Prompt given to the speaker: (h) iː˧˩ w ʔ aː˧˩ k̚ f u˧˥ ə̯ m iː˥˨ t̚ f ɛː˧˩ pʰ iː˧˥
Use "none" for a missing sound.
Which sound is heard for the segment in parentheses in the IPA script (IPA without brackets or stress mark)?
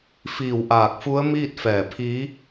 f